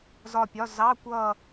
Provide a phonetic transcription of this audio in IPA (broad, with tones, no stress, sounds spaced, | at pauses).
z ɒ˦˨ pʲ ɒ˧˥˧ z ɑ˧˥˧ kʷ ʌ˦˨